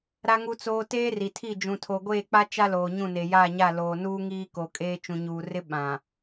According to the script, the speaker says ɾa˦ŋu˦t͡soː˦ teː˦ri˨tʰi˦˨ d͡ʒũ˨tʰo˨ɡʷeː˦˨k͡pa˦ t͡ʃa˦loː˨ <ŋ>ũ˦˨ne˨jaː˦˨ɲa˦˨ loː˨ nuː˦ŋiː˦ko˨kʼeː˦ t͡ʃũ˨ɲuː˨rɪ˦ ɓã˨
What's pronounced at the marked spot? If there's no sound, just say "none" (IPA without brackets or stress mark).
ɲ